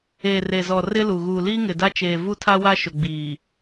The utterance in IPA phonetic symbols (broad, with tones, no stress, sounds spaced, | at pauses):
eː˨ r e˨ z ɔ˨ r ɪ˦ l u˨ ɣ uː˨ l iː˦ ŋ ɪ˨ d a˦ t͡ʃ eː˨ v u˦ tʰ a˦ w a˦ ʃ ʊ˨ ɡ͡b iː˨